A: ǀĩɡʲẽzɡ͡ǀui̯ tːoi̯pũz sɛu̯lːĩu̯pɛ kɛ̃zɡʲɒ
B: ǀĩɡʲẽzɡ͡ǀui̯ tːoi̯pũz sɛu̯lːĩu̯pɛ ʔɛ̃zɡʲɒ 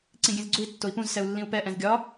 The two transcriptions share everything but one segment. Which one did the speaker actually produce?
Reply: B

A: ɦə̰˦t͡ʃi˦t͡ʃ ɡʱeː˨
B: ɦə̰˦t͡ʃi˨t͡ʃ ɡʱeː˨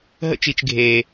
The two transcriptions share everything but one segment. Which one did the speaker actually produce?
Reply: B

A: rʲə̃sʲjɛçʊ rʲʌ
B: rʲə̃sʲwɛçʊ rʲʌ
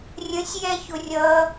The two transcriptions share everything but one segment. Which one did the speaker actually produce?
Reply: A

